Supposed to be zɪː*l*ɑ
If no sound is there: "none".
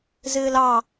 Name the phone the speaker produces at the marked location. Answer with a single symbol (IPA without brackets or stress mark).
l